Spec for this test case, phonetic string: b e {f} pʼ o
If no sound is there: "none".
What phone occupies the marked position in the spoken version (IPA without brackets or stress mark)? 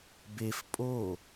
f